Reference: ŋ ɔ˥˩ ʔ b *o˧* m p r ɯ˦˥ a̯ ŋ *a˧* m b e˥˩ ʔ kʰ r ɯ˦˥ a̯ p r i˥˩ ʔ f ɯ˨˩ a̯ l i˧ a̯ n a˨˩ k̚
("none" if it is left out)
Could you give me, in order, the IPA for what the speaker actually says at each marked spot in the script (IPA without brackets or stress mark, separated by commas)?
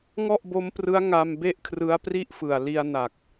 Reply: o˦˥, a˧